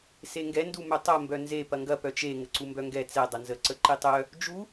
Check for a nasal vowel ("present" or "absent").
absent